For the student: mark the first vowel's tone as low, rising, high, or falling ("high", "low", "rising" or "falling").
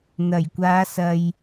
low